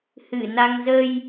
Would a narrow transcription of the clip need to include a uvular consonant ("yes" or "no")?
no